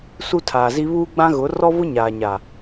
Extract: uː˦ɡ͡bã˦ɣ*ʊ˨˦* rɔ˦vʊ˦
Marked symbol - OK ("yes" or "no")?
yes